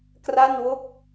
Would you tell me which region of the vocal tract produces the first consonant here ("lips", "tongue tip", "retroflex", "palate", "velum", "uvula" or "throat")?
velum